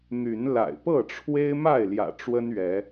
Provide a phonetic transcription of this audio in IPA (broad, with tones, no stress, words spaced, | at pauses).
n̪y˨˦nla̰˨˩ɪ̯pɤ˥˨ʈ͡ʂʰwe˦ɪ̯ ma˥˨ɪ̯ljä̰˨˩ ʈ͡ʂwə˦nɥɛ˨˦